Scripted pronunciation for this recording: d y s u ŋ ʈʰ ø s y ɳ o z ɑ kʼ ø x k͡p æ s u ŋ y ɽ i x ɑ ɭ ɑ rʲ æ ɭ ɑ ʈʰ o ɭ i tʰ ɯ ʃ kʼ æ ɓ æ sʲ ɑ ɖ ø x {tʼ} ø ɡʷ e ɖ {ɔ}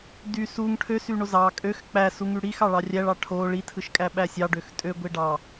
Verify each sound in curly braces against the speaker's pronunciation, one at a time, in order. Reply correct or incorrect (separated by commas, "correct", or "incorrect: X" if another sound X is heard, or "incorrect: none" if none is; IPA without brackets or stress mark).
correct, incorrect: ɑ